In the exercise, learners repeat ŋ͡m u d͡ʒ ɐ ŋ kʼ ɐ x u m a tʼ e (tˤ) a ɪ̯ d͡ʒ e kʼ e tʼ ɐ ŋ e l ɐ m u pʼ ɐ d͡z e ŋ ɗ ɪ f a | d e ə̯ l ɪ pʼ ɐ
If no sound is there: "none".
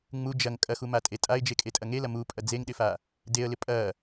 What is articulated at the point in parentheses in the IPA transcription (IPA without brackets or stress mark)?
tʼ